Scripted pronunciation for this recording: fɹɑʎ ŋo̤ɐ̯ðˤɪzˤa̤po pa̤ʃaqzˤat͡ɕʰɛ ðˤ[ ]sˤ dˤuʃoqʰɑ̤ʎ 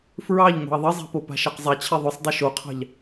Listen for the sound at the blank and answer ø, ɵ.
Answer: ɵ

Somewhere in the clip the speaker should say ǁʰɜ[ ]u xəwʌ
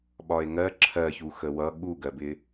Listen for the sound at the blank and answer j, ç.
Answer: ç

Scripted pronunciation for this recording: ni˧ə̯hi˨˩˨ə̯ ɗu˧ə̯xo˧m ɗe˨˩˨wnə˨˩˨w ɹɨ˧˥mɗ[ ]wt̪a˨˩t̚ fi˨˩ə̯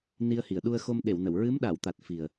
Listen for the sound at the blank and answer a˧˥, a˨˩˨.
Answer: a˨˩˨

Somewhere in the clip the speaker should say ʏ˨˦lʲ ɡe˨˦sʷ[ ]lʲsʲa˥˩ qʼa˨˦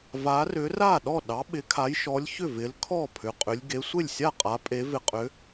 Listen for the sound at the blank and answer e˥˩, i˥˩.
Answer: e˥˩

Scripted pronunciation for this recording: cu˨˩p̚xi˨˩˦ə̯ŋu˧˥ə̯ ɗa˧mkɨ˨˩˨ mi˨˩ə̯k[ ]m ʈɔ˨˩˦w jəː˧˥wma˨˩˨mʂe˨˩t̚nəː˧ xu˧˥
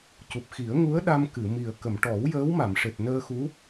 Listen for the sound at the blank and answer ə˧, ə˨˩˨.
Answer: ə˨˩˨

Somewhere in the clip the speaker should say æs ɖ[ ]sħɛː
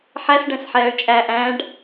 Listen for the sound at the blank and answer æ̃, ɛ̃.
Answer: ɛ̃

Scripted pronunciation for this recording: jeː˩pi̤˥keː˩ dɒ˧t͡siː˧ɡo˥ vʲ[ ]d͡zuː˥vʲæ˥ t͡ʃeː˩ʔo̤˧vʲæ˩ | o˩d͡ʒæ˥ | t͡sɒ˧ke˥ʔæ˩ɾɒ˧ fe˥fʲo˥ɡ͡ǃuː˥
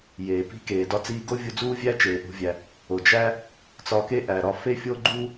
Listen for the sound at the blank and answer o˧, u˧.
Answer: u˧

